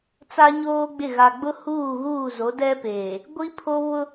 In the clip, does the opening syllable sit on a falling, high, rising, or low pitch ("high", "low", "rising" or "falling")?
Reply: high